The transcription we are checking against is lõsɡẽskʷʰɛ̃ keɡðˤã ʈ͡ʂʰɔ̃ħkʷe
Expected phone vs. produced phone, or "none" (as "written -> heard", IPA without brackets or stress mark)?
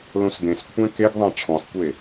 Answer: none